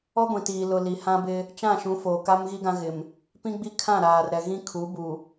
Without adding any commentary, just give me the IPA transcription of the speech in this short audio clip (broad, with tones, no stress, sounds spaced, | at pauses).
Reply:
ɔ˦ ɡʷ ĩ˨ t iː˨ l ʊ˨ l i˨ h ã˦ b ɪ˦ | t͡ʃ ã˦˨ ʃ ũ˨˦ f oː˨ k a˦ m ɣ i˦ ɡ ã˦ ɣ ɪ˨ m | p ĩ˦ ɡ͡b i˦ kʰ ã˦˨ ɾ aː˨ r ɾ ɛ˨ ɣ ĩ˦ kʰ u˨˦ b u˨